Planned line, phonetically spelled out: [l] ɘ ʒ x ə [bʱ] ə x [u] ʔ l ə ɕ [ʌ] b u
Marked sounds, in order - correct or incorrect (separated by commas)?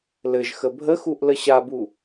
correct, correct, correct, incorrect